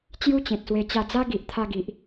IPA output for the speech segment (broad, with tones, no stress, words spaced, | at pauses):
t͡ɕju˦t͡ɕẽ˨t̚swe˧ t͡ɕa˧d͡za˦ ɡi˨ʔt̪ʰa˧ɡi˨ʔ